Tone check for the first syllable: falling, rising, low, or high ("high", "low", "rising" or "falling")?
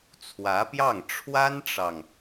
rising